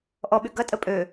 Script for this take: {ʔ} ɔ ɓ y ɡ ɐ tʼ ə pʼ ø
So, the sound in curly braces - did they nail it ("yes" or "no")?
yes